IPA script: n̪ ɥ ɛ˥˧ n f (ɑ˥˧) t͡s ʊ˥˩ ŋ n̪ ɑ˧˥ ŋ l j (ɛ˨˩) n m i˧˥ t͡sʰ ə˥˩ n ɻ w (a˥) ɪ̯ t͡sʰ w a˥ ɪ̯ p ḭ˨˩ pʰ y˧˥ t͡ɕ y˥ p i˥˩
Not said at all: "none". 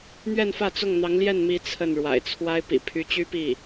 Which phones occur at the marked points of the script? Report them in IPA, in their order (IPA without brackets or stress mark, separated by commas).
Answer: ä˥˧, ɛ˥˩, a̰˨˩